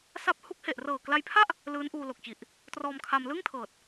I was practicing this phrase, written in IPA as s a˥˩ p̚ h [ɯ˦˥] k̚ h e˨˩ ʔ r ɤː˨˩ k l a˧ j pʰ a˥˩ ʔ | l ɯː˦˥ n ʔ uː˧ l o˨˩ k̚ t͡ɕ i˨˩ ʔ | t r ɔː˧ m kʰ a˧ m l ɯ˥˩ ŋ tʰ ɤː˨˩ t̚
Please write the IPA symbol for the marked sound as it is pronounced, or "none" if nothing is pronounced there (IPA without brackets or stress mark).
u˦˥